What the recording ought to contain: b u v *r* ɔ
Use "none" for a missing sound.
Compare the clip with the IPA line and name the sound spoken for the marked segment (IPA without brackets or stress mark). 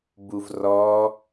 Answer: r